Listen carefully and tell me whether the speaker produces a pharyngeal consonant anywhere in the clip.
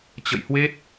no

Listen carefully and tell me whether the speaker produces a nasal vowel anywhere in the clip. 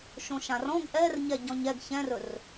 yes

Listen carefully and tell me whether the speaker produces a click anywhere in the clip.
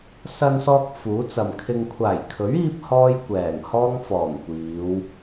no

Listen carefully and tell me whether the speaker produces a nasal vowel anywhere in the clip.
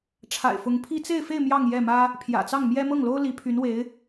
no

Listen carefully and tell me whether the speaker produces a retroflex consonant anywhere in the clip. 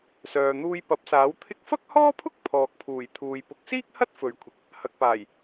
no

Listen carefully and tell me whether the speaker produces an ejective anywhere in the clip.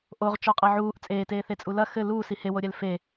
yes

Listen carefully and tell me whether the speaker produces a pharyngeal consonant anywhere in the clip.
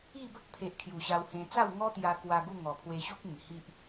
no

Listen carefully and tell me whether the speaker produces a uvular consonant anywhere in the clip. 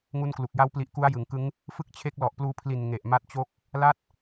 no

